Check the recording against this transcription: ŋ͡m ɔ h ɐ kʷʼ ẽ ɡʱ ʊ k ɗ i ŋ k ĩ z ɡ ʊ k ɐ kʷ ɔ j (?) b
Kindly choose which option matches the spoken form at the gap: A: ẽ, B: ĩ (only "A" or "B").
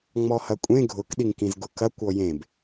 A